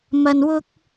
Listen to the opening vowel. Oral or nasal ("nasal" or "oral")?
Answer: oral